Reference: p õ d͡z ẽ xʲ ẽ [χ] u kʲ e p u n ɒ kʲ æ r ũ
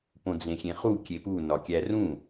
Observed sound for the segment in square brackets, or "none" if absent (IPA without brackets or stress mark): χ